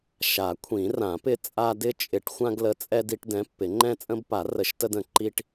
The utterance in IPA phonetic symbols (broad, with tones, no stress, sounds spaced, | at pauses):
ʃ a˨˩˦ kʷʰ ĩ˨˩˦ r ã˨˩˦ p ɪ˦ t͡sʼ a˦ d ɪ˦ t͡ʃʼ ɪ˨˩˦ ʈ xʷ ã˦ ɡ l ə˨˥ t͡sʼ ɛ˦ d i˦ ʈ d ɛ̃˨˥ pː ɪ˨˩˦ ŋ͡ǃ ɛ̃˦ t͡sʼ ə̃˦ b p a˨˩˦ r ə˨˩˦ ʃ t ə˦ d ə̃˨˩˦ ǃ i˦ ʈ